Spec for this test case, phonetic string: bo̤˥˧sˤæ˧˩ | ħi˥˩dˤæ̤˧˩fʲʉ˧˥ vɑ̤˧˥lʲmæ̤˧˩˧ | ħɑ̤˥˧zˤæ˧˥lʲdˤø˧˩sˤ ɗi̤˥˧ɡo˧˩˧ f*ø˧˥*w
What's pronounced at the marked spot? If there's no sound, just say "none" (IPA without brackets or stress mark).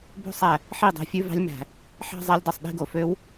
ø˧˥